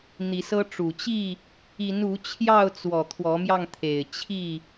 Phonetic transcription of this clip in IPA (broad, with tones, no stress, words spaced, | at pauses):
n̪i˨˦sɤ˦ ʈ͡ʂu˨˩ t͡ɕi˥˨ | i˨˦nu˨˦ t͡ɕʰjɑ˥˨ʊ̯t͡swɔ˨˩ t̪ʰwɔ˨˦mjɑ˧ŋt̪ʰe˨˩ɪ̯ t͡ɕʰi˥˨